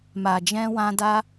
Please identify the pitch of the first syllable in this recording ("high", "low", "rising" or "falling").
low